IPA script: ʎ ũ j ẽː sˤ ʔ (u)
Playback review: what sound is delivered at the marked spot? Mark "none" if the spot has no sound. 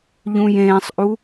u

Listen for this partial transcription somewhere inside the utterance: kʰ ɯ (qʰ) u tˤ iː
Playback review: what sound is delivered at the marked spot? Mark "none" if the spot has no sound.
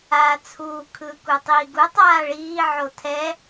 k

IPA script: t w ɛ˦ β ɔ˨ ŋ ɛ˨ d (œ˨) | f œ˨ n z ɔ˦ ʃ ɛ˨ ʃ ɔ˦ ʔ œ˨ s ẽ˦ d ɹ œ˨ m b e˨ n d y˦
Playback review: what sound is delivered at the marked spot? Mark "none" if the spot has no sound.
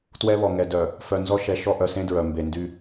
œ˨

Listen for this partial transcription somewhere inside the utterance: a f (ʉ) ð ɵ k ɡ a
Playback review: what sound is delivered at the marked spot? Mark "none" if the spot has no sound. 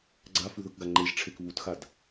ʉ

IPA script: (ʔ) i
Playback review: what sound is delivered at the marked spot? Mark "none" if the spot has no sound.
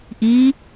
ʔ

